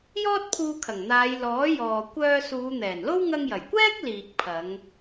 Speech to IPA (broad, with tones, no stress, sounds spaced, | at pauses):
j ɔː˥ t̚ pʰ uː˧ kʰ ɐ˨˩ ŋ n̪ aː˨˧ j l ɔː˨˥ j ɔː˨ kʷ œː˧ s uː˨˧ n̪ ɛː˨˩ n l o˥ w ŋ ɐ˧ ŋ j ɐ˨˩ j kʷ ɛː˥ k̚ l iː˨ k̚ pʰ ɐ˨˧ ŋ